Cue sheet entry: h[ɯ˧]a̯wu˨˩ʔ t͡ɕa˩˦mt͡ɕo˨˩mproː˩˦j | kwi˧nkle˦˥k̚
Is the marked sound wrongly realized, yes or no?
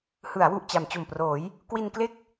yes